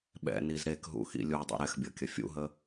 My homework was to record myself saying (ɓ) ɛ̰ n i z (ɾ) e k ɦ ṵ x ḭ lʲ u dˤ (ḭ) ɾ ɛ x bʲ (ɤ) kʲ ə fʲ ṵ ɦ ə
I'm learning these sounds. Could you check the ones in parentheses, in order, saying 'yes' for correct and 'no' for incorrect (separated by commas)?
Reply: yes, yes, yes, yes